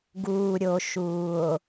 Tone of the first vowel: low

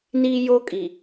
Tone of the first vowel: high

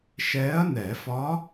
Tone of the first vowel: rising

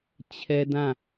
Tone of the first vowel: high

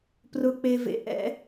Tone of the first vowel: low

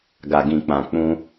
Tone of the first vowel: low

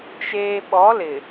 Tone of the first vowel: low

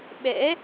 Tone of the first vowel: rising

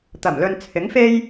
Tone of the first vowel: low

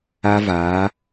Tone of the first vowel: high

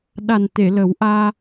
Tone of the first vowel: low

